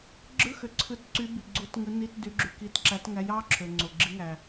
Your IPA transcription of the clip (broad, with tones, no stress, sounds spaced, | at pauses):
ɡ͡ǁ ɯ˧˥˧ x ø˨ ǀʰ ɯ˧˥ t ǀ y˧˥ b i˨ ɡ͡ǀ u˧˥ t ŋ ɯ˧˥ n i˧˥˧ t d y˧˥ ɡ͡ǁ y˨ k i˧˥˧ t ǁ æ˧˥ t ŋ æ˧˥ j ɑ˧˥˧ ǁʰ ø˨ ŋ͡ǀ o˨ ɡ͡ǁ i˧˥ ŋ æ˨